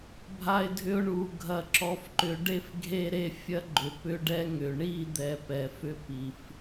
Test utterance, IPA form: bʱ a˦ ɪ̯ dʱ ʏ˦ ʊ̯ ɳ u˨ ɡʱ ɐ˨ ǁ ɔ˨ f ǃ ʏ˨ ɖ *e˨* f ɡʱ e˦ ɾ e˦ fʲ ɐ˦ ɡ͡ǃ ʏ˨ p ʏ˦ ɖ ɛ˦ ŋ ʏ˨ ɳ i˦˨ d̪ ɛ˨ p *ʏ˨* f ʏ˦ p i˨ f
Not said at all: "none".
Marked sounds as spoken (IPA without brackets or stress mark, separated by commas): e˦, ɛ˨